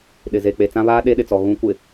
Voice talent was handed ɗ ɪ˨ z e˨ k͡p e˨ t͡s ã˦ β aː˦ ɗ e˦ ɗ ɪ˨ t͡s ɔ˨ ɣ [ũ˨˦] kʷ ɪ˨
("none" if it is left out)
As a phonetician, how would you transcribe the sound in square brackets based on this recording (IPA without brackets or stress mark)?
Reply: ũ˨˦